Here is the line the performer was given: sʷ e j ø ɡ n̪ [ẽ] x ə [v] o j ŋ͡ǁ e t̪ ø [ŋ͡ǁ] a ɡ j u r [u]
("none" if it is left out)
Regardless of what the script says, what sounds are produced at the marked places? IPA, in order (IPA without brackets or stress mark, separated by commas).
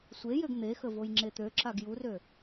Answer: e, v, ǁ, ø